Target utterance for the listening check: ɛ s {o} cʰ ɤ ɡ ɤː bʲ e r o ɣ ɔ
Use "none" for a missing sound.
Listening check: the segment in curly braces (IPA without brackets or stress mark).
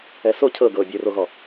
o